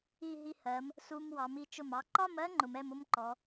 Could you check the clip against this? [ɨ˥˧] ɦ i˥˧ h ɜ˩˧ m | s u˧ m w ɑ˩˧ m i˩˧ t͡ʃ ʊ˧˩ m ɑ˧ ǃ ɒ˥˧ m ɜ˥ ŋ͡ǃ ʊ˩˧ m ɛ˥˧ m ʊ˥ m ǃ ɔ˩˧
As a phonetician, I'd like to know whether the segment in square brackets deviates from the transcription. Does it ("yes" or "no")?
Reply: yes